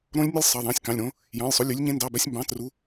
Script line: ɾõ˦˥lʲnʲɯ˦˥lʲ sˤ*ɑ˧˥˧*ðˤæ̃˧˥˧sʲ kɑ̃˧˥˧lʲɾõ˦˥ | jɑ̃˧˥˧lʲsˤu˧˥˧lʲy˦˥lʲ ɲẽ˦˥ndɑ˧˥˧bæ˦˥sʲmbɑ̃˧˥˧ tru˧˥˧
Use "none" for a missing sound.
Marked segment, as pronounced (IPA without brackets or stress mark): ɑ˧˥˧